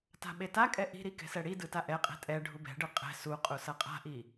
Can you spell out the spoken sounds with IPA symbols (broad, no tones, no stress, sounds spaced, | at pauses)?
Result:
t a̤ ɓ e t a kʼ ɛ ʔ i̤ ɾ i k ɛ̤ s ɛ ɽ i d ɯ t a ʔ ɛ qʼ ɛ̤ tʼ ɛ ɖʱ u b ɛ̤ ɖ ɯ qʼ ɛ̤ s u qʼ u s ʌ qʼ a̤ ʔ i